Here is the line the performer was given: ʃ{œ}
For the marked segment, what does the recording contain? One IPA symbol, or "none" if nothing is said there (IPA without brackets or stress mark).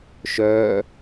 œ